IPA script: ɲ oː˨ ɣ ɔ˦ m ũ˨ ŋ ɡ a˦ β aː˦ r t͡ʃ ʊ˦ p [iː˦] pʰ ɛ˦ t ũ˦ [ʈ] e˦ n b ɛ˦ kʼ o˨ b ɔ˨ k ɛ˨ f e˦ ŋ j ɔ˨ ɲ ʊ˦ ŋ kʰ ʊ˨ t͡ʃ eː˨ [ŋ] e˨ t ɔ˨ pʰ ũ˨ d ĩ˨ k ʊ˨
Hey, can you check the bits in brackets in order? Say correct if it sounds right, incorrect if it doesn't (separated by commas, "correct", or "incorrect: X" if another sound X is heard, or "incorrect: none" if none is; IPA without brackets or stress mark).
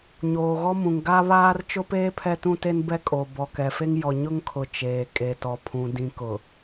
incorrect: eː˦, incorrect: t, incorrect: kʼ